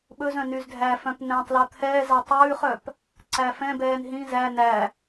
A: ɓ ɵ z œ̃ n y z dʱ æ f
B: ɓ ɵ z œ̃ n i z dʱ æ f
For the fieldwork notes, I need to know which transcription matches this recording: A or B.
A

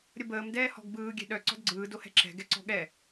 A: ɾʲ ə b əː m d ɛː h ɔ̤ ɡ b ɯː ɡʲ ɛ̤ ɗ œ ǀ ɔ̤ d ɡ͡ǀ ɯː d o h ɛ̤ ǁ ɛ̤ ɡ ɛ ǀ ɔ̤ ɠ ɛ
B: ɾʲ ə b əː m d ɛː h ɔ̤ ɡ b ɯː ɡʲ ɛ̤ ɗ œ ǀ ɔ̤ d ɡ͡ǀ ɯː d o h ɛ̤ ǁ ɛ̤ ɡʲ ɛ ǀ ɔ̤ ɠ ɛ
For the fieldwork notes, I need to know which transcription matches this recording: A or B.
A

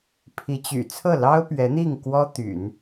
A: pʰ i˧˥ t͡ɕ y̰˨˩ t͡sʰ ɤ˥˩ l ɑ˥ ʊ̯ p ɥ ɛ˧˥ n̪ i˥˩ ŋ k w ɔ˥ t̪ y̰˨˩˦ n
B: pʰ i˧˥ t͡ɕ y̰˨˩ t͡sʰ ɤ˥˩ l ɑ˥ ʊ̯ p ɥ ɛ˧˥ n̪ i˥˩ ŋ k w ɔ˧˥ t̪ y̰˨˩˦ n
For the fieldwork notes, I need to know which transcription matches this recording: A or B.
A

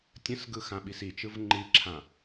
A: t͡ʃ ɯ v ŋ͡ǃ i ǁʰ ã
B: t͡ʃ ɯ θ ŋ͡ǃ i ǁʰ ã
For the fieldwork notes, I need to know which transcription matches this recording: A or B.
A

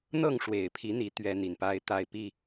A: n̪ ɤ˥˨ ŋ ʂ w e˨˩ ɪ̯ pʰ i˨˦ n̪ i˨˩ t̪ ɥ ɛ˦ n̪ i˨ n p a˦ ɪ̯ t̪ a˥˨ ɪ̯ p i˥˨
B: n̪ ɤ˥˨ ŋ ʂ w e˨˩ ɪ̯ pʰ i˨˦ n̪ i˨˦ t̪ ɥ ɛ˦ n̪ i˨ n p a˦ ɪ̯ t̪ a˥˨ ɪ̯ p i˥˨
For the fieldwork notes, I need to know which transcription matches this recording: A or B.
B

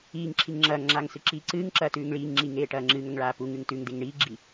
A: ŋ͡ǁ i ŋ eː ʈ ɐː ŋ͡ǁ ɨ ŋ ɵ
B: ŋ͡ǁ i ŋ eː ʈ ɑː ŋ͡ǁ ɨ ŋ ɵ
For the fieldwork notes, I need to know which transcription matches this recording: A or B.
A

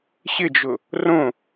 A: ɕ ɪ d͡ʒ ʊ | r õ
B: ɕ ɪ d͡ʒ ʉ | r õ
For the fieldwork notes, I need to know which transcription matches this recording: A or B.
A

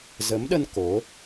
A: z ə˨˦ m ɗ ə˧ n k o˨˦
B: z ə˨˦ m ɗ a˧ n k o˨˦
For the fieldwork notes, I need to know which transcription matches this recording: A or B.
A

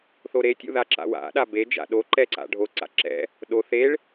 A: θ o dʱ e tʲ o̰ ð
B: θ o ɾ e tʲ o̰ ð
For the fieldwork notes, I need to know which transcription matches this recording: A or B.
B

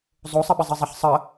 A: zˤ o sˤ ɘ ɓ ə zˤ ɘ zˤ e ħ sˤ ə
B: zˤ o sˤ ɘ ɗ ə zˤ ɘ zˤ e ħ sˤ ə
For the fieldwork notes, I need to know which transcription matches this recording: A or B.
A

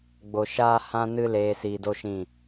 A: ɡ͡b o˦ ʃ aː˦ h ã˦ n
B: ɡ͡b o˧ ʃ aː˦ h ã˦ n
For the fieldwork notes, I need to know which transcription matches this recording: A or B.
B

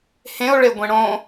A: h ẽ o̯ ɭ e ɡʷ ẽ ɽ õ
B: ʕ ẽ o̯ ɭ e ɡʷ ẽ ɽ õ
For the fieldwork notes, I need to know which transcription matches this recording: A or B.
A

